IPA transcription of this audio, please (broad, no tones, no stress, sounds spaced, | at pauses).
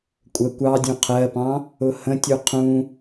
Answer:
kʷʼ ə kʷ ɑ dʲ ũ qʰ ɜ p ɑ̃ | ʊ h ə̃ tʲ u qʰ ũ